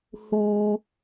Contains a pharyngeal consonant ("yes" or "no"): no